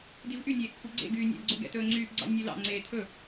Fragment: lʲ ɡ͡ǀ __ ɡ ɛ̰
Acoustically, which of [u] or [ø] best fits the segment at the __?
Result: ø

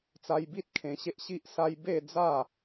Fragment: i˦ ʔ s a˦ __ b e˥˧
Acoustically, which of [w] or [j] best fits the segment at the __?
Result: j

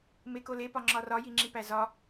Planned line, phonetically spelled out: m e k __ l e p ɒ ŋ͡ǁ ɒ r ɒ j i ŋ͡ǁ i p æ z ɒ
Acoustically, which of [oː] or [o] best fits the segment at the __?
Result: o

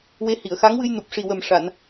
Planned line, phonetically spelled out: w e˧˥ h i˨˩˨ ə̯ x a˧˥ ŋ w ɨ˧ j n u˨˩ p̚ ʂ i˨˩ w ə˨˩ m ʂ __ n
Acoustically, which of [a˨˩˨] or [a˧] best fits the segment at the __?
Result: a˨˩˨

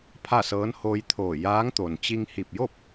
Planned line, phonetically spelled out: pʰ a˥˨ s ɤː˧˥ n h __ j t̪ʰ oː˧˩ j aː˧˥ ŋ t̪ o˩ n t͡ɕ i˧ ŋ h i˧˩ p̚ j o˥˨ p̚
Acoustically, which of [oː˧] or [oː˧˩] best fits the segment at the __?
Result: oː˧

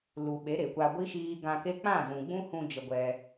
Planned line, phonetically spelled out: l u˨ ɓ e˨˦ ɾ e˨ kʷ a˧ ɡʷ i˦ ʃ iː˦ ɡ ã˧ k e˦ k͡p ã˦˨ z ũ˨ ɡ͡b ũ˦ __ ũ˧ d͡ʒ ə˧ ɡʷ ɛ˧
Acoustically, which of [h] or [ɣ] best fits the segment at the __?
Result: h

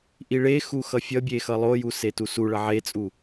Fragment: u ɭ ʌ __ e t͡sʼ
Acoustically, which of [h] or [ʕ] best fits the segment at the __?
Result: ʕ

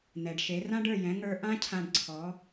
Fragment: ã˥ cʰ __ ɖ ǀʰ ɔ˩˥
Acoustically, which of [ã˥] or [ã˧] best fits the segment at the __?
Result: ã˧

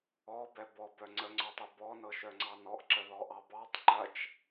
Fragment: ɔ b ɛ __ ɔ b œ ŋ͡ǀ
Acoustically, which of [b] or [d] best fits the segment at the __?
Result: b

